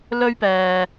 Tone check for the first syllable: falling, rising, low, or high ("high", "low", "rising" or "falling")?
high